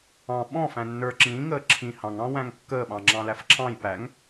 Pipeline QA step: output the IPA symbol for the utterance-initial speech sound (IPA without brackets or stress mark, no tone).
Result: ɑ̃